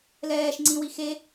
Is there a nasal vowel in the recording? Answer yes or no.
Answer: yes